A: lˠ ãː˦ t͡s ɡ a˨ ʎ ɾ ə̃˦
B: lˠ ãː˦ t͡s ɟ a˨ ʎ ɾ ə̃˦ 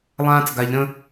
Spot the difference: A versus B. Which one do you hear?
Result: A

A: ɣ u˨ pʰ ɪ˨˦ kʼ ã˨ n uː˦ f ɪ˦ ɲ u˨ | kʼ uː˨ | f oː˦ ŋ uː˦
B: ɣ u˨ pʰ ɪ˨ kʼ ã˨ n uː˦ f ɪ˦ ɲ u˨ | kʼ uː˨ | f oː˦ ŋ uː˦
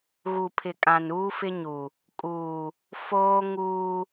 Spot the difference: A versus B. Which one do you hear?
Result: B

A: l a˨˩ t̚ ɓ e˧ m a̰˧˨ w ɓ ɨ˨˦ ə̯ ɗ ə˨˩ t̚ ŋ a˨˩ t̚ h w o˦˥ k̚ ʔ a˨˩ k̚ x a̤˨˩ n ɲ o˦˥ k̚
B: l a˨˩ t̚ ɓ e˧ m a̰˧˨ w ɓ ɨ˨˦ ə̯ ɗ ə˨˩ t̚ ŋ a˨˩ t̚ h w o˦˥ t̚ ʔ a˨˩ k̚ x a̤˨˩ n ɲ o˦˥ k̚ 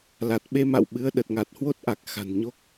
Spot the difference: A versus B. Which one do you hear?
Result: B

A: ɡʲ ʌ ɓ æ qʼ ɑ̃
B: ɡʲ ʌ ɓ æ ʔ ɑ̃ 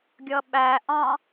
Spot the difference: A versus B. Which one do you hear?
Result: B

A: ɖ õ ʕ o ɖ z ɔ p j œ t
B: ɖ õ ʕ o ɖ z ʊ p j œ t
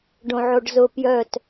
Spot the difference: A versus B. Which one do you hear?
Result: B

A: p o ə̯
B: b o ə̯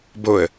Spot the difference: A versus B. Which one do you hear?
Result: B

